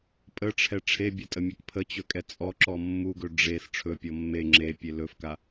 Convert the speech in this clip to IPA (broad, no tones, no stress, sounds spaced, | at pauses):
pʼ ə ʈ͡ʂʰ ɛ ʈ͡ʂʰ e bʲ ɐ tʼ ə mʲ ɵ k pʰ ə t͡ɕ ɵ kʼ ɛ t͡sʼ ɔ ǁ ɔ mː u ɡ ɵ ɖ͡ʐ e s ʈ͡ʂʰ ɵ pʲ ɔ mː e ŋ͡ǁ e pʲ e l ɵ f k a